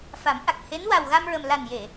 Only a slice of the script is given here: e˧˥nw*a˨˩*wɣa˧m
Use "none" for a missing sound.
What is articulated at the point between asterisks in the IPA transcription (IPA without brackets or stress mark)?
a˨˩